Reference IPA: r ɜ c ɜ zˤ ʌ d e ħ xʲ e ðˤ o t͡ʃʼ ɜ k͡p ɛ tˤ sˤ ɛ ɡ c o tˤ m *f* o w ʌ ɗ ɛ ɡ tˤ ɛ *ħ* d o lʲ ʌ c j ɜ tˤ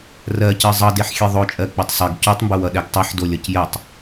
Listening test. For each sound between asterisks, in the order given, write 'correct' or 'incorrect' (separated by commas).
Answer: incorrect, correct